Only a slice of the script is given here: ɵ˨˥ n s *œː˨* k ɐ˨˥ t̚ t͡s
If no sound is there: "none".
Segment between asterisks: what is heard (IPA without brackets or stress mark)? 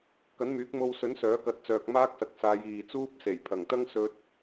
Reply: œː˨˥